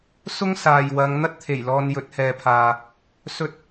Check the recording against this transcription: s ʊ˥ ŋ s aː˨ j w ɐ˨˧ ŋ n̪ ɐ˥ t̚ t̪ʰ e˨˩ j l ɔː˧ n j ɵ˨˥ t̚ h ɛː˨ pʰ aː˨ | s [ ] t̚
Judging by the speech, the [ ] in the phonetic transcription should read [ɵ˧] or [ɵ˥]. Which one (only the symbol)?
ɵ˥